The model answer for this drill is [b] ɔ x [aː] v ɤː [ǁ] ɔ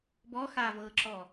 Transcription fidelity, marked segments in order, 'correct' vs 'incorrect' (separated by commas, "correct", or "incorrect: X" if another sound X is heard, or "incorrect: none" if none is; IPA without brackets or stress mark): correct, correct, correct